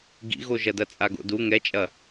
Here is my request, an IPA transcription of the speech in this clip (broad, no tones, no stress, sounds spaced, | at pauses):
ɡ ḭ ɣ o ʒ ɐ d ɐ t͡sʼ a ɡ o̰ d u ŋ ɛ t͡ʃʼ ɐ